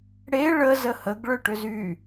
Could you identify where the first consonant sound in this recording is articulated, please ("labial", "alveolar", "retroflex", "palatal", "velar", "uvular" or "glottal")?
retroflex